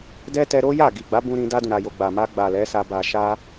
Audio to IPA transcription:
d ɛ˦ t ɛ˧ ɾ o˦ j a˦˨ ɡ i˨ ɡ͡b a˨˦ b ũ˧ ɾ ĩ˧ d a˧ d ũ˨ ɾ a˨ j o˨ ɡ͡b a˨ m a˧ ɡ͡b a˨ l ɛ˨˦ s a˧ b a˨ ʃ a˧

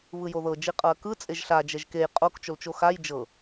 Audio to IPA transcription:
β ɯ j o ð ɤ d͡ʒ i qʼ ɤ ɐ̯ k ɯ t͡sʼ e ʒ ɬ a d͡ʒ ɛ ʒ k e j qʼ o k t͡ʃ o l t͡ʃ o x a j d͡ʒ ɤ

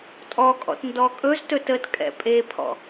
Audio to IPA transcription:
tʼ ɔ kʼ ɔ̰ t n d ɔ kʼ ɵ z t ɵ t ə t kʼ ɛ̰ pʼ e pʰ ɔ̰

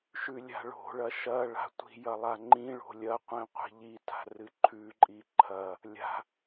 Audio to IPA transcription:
ʃ ʉ lʲ a̤ ɭ o̤ ɭ ɐ ʃ ɐ ɭ a̤ tʷ i̤ j ɐ lˠ a ŋ͡ǃ ĩ ɭ o̤ lʲ ɐ qʷ ĩ qʷ i̤ ʎ i t a̤ r ɨ ǃʰ ʉ ǃʼ i ǃʰ ɐ | lʲ a̤

